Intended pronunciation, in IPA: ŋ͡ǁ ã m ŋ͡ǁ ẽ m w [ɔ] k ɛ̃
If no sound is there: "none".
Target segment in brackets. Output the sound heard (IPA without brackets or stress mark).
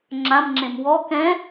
ɔ